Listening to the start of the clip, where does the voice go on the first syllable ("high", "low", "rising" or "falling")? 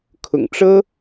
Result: low